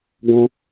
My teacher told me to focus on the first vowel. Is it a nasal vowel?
yes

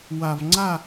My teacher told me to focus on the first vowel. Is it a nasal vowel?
no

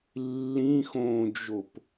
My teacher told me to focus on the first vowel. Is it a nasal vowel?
yes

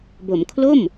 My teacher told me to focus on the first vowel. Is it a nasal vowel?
no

